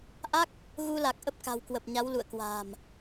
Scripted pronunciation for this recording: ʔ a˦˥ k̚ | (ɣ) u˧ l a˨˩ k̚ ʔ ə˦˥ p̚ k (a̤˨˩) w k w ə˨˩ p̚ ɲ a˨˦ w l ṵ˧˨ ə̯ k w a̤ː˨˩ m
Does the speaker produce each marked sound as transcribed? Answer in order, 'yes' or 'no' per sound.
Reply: yes, yes

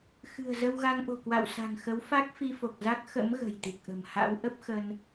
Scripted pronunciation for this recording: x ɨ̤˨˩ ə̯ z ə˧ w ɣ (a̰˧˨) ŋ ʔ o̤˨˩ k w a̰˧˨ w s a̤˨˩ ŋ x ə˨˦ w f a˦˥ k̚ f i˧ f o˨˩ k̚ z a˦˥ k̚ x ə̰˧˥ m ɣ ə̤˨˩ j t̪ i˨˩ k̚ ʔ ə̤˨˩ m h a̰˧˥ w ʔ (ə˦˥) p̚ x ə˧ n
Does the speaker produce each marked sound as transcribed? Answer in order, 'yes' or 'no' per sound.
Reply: no, yes

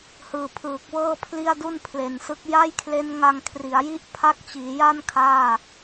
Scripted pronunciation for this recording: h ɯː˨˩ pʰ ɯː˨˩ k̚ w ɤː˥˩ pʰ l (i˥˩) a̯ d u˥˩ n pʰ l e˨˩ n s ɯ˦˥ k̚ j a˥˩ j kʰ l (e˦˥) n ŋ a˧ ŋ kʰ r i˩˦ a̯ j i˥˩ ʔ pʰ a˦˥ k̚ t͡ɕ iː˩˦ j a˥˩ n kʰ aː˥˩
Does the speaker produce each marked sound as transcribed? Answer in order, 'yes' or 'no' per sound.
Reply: yes, yes

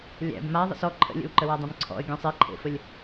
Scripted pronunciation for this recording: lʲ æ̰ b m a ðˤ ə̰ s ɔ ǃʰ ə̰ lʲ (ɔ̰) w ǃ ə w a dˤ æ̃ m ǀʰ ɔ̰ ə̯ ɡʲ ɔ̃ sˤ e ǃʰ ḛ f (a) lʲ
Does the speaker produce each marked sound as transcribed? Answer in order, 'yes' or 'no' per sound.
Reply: no, no

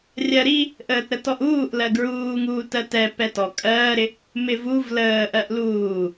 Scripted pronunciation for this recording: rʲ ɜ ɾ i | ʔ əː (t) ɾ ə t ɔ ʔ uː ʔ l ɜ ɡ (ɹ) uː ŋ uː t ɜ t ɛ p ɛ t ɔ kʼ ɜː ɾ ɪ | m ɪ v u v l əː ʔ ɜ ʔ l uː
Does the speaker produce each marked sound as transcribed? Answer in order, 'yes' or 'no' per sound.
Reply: yes, yes

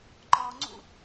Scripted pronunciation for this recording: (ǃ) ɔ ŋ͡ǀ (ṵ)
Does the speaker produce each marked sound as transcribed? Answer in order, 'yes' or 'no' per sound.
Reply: yes, yes

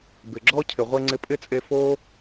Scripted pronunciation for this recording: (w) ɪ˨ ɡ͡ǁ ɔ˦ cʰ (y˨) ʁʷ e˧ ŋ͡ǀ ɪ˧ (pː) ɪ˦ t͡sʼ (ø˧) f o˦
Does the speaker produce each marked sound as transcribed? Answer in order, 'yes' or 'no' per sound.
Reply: no, no, no, no

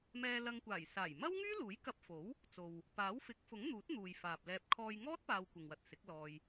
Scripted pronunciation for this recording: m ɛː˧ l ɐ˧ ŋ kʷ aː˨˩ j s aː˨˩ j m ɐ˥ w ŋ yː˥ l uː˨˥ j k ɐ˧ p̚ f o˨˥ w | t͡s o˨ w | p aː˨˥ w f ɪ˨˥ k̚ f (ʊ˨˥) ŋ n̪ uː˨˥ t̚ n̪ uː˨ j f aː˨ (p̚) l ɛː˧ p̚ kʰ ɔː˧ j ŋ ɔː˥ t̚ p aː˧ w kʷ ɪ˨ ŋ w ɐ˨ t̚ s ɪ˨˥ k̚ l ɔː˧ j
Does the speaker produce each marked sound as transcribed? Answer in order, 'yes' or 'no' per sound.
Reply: yes, yes

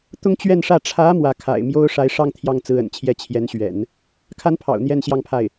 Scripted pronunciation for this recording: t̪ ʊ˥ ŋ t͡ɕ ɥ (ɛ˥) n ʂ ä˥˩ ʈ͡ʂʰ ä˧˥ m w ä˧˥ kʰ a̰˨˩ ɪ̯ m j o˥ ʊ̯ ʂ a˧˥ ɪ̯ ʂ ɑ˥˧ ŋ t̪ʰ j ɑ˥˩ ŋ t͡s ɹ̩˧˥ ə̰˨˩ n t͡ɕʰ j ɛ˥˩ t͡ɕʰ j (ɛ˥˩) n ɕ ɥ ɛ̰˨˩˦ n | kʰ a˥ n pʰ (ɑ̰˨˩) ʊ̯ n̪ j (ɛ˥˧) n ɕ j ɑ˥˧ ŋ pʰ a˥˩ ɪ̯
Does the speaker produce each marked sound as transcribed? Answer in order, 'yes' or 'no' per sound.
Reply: no, no, yes, yes

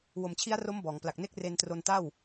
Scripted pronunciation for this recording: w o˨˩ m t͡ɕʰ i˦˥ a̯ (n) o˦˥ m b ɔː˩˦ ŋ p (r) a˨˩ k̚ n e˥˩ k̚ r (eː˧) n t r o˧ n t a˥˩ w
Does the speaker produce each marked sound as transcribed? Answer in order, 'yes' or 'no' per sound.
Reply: no, no, no

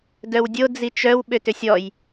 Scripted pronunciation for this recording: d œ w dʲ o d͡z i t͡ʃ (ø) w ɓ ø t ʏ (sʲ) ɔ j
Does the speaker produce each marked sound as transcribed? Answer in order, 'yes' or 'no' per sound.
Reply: no, yes

